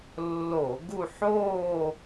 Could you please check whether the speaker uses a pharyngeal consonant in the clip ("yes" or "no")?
yes